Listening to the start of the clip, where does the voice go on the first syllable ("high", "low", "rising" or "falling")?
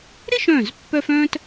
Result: high